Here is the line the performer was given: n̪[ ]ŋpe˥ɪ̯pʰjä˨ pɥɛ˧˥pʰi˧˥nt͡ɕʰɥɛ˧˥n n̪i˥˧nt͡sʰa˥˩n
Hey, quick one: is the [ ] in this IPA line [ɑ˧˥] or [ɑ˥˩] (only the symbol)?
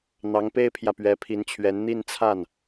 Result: ɑ˧˥